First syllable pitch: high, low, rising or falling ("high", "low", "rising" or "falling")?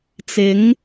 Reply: rising